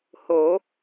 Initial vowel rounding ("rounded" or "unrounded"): rounded